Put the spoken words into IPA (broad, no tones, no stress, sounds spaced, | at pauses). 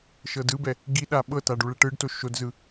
ʃ ɤ d ɯ b ɛ | ɡ i ɗ a ɓ ɤ t a ɖ u ɭ ɛ ʈ ɯ ɖ t o ʃ o d z ɯ